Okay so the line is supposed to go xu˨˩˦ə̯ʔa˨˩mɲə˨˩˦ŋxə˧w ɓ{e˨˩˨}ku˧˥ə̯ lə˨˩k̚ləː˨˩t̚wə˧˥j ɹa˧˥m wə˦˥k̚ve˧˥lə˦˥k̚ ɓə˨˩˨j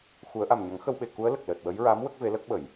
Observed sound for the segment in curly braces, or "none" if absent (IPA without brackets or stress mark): e˨˩˨